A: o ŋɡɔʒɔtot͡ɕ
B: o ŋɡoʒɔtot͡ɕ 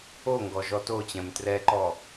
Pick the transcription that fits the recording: A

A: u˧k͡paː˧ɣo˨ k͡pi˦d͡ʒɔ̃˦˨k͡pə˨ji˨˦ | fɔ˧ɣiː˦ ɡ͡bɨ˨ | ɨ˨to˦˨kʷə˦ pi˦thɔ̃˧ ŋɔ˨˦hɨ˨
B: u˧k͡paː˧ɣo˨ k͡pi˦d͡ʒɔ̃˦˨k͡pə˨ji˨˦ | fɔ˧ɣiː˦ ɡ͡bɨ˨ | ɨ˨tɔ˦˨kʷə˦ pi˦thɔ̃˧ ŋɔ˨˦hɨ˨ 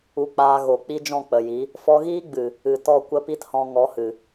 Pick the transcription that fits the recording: B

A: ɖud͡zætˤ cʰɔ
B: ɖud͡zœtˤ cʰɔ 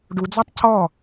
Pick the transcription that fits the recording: A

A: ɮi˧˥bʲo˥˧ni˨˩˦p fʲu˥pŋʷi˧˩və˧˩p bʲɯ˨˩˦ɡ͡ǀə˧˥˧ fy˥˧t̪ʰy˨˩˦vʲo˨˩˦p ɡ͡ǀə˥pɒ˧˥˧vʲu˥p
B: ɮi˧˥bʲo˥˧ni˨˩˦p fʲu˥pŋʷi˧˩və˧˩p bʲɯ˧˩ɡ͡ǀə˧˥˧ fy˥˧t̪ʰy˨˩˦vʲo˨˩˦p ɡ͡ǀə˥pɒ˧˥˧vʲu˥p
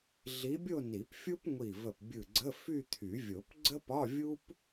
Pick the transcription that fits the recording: B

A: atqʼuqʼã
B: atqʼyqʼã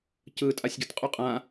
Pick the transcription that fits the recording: A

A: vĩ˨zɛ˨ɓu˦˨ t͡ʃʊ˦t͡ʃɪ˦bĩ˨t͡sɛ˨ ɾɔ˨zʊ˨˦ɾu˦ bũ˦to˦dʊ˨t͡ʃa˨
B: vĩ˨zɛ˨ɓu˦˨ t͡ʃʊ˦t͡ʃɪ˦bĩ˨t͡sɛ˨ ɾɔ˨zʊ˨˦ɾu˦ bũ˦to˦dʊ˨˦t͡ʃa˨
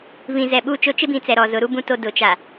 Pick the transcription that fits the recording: B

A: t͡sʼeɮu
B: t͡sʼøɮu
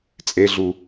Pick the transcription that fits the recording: A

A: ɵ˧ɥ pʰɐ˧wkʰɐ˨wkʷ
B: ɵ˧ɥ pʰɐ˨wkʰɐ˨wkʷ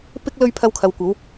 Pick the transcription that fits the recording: A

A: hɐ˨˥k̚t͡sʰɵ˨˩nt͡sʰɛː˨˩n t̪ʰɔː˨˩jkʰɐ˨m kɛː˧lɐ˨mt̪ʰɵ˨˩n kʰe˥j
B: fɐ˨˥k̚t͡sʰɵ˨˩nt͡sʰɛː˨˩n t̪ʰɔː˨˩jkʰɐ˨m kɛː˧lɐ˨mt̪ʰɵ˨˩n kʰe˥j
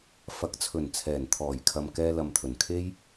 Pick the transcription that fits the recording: B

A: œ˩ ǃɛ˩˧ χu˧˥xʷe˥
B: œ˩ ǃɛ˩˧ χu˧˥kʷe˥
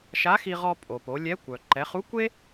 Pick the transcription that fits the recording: B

